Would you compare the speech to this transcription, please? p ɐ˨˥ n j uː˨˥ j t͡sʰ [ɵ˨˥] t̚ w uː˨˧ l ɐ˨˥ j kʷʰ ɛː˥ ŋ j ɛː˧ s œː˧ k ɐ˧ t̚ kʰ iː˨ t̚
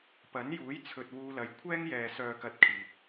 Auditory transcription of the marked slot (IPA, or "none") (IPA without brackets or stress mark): ɵ˨